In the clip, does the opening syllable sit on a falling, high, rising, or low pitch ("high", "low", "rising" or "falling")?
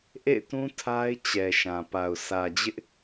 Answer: falling